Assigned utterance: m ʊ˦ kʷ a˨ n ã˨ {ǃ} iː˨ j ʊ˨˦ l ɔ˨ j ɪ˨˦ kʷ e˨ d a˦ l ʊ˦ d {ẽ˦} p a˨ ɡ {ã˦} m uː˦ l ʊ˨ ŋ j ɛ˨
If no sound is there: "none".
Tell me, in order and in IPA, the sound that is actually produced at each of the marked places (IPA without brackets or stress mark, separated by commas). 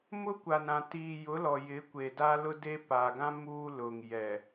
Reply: t, e˦, ã˦